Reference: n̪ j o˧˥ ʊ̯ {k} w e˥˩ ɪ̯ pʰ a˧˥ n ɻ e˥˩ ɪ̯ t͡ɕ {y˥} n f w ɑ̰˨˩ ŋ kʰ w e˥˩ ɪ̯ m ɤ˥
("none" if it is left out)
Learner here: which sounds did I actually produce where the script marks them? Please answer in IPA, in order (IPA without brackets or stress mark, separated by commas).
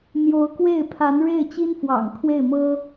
k, i˥